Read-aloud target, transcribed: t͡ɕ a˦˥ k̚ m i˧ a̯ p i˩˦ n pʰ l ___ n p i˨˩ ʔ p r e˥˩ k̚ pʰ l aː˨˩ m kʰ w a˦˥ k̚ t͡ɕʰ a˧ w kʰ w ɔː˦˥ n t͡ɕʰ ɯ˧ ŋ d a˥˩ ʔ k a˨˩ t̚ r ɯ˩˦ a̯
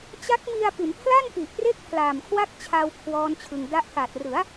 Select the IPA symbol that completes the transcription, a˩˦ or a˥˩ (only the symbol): a˥˩